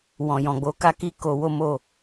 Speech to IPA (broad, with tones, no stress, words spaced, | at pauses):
wɔ̃˨ jɔ̃˨ɡ͡bo˨˦ka˦ ki˦ ko˧wo˦mo˦˨